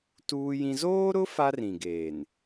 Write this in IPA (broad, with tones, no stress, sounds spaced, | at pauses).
t uː˦ j ĩ˦ z oː˦ ɾ ʊ˦ f a˦ r ĩ˨ ɡ eː˨ n